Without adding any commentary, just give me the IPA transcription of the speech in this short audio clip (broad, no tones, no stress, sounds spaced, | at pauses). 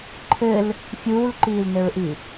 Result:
ǃʰ ɘ l | fʲ uː l ǃ iː l n ɘ ɹ ʔ i